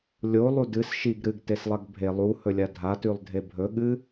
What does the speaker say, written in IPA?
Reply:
lʲ o lˠ u d ɨ s ʃ i ɡ ɾ ɨ ɡ t e s lˠ ɐ ɡ bʱ e lˠ u h ɵ lʲ a dʱ a t ʉ lˠ dʱ e bʱ ɵ ɠ ɨ

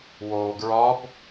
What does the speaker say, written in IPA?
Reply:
w oː ɡ ɹ ɒ b

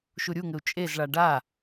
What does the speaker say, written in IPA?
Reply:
ʃ u ɾʲ u ŋ ɘ u̯ t͡ʃʼ e z ɭ a ɖ a

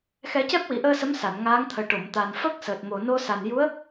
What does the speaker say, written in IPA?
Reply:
x ɛ˨˩˦ c ɛ˦˥ p̚ w i˨˩˨ ʔ əː˧ s ə˧˥ m s a˨˩˨ n ŋ aː˧˥ ŋ t̪ʰ əː˨˩ ʈ o˨˩˨ m t̪ a˨˩ n f ə˦˥ k̚ s əː˨˩ t̚ m o˨˩ n o˧ s a˨˩ n j u˧˥ ə̯

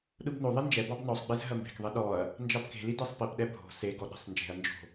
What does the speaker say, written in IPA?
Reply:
ɗ ɯ b n o ðˤ i n d͡ʒ ɛ b ɑ b n ɔ sˤ ɡ͡b e z ɦ ɜ m b e̤ k ðˤ i ɗ ɔ ɐ̯ | n d͡ʒ ɑ b k e̤ l i d e sˤ p i p ɗ ɛ bʱ o̤ s e ɡ ɔ ɗ e̤ sˤ n d͡ʒ e̤ ɐ̯ n d͡ʒ o̤

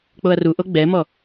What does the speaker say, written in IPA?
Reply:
k͡p o ɐ̯ r u ʔ o ɡ͡b ɛ m ɔ

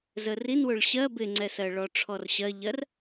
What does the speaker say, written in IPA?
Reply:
z ə r i n w ʊ ɭ ɕ ɜ b ɪ ŋ͡ǀ ɛ s ɜ ɭ ɔ ʈ͡ʂʰ ɔ r ɕ ɜ ʎ ɜ r

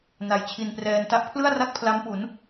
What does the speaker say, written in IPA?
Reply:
n a˨˩ j t͡ɕʰ i˧ n p r ɛː˧ n t a˦˥ ʔ pʰ l ɯ˥˩ a̯ r a˥˩ k̚ pʰ l a˦˥ m p u˩˦ n

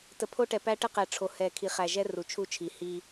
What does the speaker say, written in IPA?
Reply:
t ə˨ pʰ o˦ ʈ ɛ˨ p æ˦ ʈ ə˦ q ɛ˨ ʈ͡ʂʰ o˨ h ɛ˨ kʰ i˨ χ æ˨ ʒ ɛ˦ r u˨ t͡ʃʰ u˦˨ t͡ʃʰ i˨ h i˦

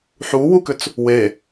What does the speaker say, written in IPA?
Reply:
ħ u w u k ʏ t͡s | w e

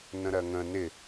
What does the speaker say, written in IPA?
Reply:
n ə̃ ɾ ɜ ŋ ə̃ n ɪ

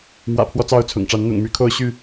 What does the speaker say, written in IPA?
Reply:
m w ä̰˨˩ pʰ w ɔ˦ t͡s ɑ˦ ʊ̯ t͡sʰ ʊ̰˨˩ ŋ ʈ͡ʂ a˨˦ n n̪ ʊ̰˨˩ ŋ m y˨˦ kʰ o˥˨ ʊ̯ ɕ y˥˨

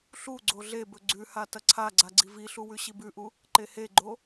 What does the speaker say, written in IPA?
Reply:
ɬ u ɡ͡ǀ o ɮ e b ɵ ɡ͡ǀ ʉ h a t ɐ ǀʰ a ɡ͡ǀ a ɡ͡ǀ i v i ɬ u w ʉ ɕ i b ʉ ʔ u | ǃ e h e ɡ͡ǃ o

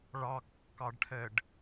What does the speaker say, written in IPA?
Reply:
ɭ ɑ kː ɑ ɖ ʈʰ ɛ ɖ

